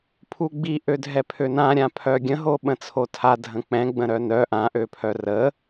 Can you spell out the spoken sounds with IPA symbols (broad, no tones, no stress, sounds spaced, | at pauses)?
pʰ u ɡ͡b i ʔ ø dʱ ɛ pʰ ø n ã ɾʲ ã pʰ œ ɡʲ ə̃ ɦ o ɓ ə̃ t͡sʰ o tʰ a dʱ ə̃ k͡p ɛ̃ ɡ͡b ə̃ ɾ œ n œ ʔ ã ʔ ø pʰ œ r ə